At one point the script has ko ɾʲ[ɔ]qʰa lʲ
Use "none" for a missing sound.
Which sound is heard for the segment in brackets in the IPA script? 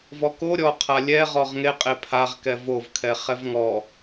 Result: ɔ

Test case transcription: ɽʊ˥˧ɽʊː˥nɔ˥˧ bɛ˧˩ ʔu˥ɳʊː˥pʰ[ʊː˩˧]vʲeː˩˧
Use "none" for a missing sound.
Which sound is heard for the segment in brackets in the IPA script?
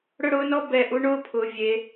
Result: ʊː˩˧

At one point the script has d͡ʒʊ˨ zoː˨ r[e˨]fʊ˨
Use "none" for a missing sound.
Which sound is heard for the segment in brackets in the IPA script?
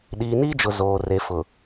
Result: e˨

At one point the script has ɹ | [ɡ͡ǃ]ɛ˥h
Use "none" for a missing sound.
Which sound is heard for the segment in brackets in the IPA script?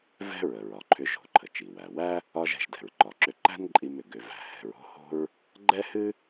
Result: ɡ͡ǃ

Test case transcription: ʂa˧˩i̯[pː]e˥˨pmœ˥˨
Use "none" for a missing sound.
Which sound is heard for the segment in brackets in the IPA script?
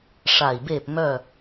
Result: b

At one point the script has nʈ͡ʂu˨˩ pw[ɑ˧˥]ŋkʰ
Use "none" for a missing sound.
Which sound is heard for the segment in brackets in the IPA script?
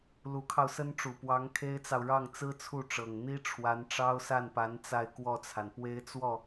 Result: ɑ˧˥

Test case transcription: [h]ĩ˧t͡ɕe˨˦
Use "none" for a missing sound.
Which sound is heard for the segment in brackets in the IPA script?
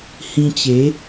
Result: h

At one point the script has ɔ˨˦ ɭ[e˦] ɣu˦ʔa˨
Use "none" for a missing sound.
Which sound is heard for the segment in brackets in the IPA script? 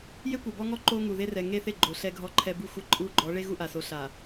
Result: e˦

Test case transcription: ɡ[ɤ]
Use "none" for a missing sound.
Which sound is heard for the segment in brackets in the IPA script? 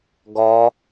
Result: ɔ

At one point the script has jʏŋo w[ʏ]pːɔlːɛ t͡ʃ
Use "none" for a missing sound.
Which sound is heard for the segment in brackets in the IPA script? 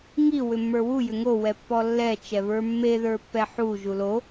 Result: ɛ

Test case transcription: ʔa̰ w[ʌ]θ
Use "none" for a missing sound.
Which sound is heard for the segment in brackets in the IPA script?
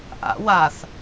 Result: a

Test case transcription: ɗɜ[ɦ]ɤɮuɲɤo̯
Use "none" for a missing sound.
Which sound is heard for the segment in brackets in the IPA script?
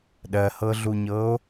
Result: h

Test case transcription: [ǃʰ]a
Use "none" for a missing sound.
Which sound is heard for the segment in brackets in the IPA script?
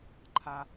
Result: ǃʰ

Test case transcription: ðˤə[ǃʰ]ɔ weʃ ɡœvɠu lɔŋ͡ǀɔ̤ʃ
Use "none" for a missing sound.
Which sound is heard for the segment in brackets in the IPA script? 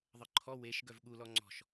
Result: ǃʰ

